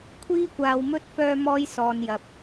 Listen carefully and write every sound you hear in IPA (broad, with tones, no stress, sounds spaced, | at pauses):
kʷʰ iː˥ kʷ aː˧ w m ɵ˥ t̚ f œː˥ m ɔː˥ j s ɔː˧ n j ɐ˧ p̚